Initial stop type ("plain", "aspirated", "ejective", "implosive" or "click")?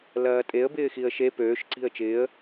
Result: ejective